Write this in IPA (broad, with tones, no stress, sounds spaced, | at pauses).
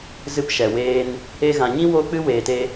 z ɨ˧ p ʃ ɛ˨ w eː˧ n | e˧ ɣ ã˨ ɲ ĩ˦ w o˦ k͡p ɨ˦ w eː˨ t e˧